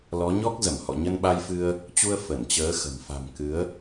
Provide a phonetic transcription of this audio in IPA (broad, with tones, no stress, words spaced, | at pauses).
lɔ˨˦ ɲɔ˦˥k̚zə˧˩m hɔ̰˧˨ɲə˧nɓa˧jfɨ˧ə̯ | t͡ɕu˧ə̯ fə˧˩nt͡ɕəː˨˦xə̤˨˩m fa̤˨˩m kɨ˨˦ə̯